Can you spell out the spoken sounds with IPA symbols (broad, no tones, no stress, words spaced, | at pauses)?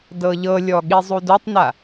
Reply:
dɤʎɤlʲɔ ɠizˤudotˤna